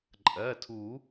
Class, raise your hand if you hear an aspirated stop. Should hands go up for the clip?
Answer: yes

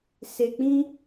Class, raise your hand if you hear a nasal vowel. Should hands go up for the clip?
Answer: yes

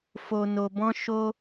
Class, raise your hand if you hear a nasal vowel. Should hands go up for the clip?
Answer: yes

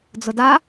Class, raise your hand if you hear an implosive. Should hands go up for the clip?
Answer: no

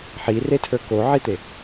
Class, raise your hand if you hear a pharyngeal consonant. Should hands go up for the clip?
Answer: yes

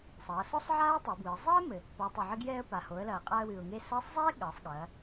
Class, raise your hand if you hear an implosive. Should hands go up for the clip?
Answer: yes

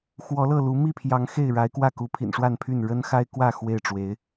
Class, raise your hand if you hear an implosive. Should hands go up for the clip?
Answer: no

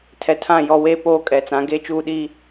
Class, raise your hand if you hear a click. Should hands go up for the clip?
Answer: no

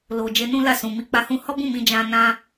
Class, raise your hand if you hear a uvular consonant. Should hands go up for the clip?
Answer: no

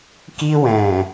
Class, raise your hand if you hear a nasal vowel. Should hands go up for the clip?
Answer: yes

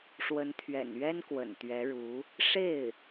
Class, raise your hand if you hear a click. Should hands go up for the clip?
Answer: no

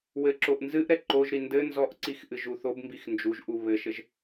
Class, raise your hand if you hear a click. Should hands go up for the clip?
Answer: yes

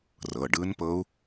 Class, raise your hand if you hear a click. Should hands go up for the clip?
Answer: no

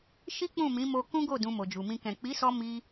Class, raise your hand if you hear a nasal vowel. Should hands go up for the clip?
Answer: yes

